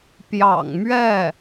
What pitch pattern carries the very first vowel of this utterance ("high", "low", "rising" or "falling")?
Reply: low